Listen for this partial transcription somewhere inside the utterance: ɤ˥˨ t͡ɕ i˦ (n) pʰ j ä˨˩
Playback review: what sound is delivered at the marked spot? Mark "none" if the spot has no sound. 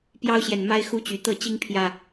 ŋ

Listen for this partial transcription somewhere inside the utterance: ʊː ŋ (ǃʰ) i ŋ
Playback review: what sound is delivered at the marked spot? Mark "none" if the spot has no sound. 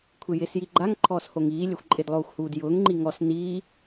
ŋ͡ǃ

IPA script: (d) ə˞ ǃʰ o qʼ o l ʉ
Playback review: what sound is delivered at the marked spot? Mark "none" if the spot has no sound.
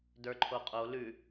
d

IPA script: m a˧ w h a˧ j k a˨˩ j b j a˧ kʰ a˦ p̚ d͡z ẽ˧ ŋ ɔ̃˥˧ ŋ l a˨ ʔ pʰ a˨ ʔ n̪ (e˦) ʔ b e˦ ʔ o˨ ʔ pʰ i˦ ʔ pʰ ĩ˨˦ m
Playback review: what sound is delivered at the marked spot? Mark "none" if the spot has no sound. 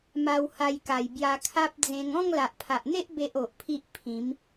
e˦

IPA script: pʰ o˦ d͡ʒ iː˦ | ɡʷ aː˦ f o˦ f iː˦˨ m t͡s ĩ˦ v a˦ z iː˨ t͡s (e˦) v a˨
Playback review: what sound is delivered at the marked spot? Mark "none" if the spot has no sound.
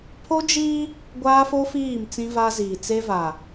e˦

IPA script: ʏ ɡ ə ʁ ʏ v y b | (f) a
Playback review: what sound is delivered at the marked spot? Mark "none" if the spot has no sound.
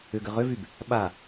ɓ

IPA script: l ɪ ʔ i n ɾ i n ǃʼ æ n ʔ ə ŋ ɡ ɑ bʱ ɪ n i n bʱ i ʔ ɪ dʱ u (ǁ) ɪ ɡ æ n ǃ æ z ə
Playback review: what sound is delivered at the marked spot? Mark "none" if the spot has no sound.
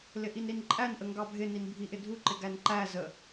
ǃ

